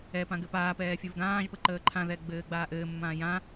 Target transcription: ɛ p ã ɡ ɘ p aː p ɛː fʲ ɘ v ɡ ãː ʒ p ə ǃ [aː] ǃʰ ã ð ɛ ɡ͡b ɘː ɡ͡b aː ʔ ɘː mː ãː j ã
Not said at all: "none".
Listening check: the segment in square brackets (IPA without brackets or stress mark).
əː